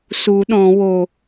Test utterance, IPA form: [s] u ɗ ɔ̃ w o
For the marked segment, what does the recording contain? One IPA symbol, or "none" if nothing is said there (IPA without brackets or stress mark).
s